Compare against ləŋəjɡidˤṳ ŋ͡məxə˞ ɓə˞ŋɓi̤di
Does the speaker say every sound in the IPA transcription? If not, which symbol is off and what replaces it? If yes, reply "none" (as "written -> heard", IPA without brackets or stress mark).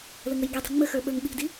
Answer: none